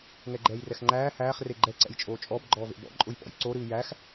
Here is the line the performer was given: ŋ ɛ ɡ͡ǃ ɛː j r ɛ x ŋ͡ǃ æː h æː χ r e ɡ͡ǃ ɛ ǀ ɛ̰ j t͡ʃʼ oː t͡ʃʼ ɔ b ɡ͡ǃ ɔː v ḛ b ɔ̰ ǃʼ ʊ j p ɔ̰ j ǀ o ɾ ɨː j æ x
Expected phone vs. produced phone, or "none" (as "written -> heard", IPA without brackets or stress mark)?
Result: none